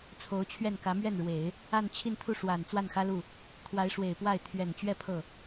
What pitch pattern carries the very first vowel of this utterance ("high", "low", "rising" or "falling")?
rising